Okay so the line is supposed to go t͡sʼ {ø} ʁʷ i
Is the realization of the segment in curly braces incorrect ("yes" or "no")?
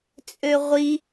no